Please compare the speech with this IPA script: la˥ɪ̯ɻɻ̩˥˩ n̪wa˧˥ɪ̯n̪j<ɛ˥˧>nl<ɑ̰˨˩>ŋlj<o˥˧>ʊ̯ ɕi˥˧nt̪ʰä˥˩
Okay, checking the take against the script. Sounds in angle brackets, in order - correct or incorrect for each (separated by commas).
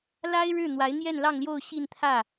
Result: correct, incorrect, correct